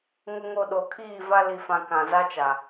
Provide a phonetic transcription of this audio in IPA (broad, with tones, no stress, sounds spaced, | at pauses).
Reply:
ŋ ʊ˨ ŋ o˨ ɗ o˨ kʰ iː˦˨ v a˦ l i˨ f ã˨ k ã˨ z a˦ t͡ʃ a˨